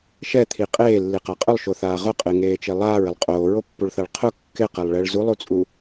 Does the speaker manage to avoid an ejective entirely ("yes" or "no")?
no